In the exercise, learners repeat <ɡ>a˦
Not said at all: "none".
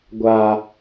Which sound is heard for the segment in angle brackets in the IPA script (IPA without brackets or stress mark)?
ɡʷ